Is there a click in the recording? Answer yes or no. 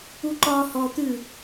yes